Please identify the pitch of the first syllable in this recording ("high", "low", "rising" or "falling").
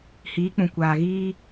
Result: rising